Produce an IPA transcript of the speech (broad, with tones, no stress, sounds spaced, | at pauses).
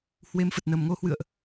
h w e˧ m f ə˨˩ t̚ n ə˨˩ m ŋ o˧ h w ɨ̰˧˨ ə̯ ʔ